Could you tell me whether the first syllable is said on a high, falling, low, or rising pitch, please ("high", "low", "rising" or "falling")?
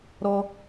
high